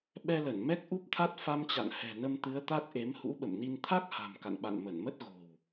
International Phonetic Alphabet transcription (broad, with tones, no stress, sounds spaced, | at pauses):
ɓ ɛ˧ l ə˧˩ n m ɛ˦˥ k̚ ʔ u˦˥ p̚ t̪ʰ a˦˥ t̚ f a˧ m t͡ɕ a̰˧˨ n h ɛ̤˨˩ n ə˧ m t̪ ɨ˨˦ ə̯ t̪ a˦˥ t̚ ʔ e˨˦ m h ṵ˧˥ ɓ ə̰˧˨ m n i˧ n t̪ʰ a˦˥ k̚ h a̤˨˩ m k a̰˧˨ n ɓ a̰˧˨ n m ə˧˩ n m ə˦˥ t̚ ɣ o̤˨˩ w